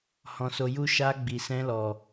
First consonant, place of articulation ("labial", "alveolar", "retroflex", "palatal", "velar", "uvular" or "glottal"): glottal